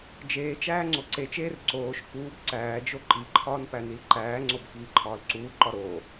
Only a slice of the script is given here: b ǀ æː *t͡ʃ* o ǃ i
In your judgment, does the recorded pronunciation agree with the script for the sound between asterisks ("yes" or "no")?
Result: no